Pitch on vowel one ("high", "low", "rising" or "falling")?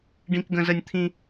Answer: high